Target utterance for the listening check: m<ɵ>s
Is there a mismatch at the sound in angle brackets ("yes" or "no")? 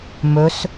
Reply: no